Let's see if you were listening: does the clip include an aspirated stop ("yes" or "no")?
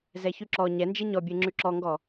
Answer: no